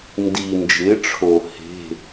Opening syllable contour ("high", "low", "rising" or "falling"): low